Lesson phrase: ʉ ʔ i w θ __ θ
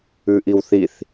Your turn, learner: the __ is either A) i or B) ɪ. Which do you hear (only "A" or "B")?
A